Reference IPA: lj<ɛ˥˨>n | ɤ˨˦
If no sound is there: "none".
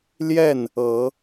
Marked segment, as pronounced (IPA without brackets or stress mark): ɛ˥˨